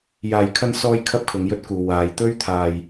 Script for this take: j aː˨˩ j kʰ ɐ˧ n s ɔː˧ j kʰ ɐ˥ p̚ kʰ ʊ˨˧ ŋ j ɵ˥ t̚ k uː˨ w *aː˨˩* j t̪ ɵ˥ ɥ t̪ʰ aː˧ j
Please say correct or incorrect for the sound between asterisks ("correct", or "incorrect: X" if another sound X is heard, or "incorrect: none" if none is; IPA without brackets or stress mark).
incorrect: aː˨